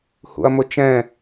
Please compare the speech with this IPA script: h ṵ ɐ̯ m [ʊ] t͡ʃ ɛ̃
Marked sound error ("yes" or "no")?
no